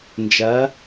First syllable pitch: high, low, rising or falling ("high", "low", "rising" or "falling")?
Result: rising